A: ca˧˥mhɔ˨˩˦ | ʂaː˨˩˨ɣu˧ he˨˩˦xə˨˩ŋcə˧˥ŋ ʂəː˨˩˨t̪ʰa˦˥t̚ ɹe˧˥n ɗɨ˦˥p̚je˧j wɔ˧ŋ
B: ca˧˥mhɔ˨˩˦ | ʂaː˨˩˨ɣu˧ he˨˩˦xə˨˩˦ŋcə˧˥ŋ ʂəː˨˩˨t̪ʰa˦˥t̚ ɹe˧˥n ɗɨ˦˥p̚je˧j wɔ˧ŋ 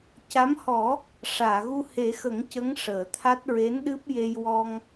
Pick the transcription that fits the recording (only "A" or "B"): B